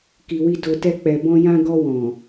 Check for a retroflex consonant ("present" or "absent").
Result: absent